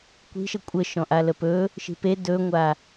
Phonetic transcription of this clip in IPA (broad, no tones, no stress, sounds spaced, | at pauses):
kʷ i̤ ʃ ə kʷʼ ə ʃ ɔ̃ ʔ a l ə p ɵ | ʃ i̤ p e d ɵ ŋʷ a